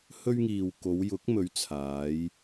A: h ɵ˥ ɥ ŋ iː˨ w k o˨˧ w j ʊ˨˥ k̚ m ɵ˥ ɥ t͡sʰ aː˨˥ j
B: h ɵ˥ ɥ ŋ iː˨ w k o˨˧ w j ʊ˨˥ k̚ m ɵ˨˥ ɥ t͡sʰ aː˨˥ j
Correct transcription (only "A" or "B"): B